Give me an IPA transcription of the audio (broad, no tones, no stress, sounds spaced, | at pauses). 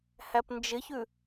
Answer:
h æ p n d͡ʒ ɪ ç ʉ